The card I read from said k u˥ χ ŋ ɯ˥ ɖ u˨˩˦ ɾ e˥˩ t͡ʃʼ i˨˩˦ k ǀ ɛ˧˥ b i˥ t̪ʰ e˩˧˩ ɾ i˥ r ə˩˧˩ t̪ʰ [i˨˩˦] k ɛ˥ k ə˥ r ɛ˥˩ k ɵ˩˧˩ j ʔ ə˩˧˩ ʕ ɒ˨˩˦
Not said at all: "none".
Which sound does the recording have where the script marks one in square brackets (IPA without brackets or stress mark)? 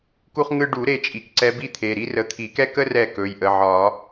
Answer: i˨˩˦